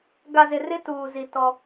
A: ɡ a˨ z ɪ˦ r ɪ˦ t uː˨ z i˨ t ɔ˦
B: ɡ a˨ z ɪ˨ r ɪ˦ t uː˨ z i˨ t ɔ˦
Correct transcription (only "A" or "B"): B